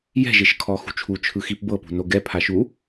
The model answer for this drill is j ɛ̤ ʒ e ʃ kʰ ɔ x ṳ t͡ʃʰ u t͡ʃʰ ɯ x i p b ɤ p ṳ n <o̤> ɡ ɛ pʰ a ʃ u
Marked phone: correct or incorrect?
incorrect